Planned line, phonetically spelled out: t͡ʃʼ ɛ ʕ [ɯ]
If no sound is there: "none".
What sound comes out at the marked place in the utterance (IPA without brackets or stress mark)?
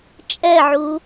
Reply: u